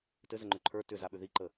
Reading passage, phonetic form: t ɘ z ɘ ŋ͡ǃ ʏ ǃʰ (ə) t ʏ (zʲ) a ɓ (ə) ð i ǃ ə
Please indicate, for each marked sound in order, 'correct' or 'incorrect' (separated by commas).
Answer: incorrect, incorrect, incorrect